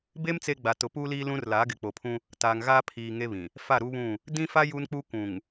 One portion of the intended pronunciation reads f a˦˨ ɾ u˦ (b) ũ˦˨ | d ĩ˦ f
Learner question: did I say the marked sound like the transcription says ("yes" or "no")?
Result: no